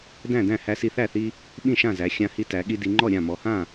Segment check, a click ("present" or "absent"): present